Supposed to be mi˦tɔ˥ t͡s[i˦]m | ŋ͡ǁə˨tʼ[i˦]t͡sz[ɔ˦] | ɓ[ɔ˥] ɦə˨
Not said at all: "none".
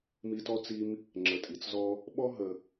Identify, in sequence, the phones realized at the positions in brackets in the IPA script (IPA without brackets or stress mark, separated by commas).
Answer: i˦, i˨, ɔ˥, ɔ˥